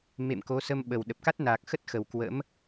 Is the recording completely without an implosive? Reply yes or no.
no